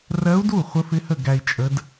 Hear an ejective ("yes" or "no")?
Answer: yes